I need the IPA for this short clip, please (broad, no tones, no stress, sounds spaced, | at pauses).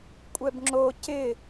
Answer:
kʷʼ ɛ b ŋ͡ǁ o c ɪ